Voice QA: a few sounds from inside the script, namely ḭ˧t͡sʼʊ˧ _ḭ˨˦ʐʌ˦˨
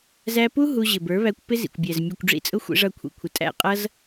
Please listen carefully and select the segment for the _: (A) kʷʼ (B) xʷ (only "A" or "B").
B